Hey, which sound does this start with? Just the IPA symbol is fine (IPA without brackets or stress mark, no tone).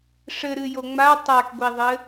ʂ